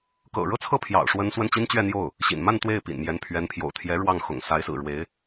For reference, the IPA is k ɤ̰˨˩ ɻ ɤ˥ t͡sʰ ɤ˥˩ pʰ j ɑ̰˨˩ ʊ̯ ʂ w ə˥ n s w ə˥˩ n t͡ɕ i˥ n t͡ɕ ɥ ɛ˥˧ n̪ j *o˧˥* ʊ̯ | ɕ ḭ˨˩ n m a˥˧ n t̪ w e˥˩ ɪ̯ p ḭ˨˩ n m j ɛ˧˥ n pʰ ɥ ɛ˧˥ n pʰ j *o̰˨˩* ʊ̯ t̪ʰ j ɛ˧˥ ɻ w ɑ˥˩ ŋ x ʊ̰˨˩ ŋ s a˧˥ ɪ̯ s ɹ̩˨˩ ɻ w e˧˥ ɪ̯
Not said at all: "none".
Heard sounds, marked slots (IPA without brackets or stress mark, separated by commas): o˥˩, o̰˨˩